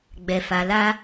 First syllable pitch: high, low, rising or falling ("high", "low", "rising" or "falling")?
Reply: low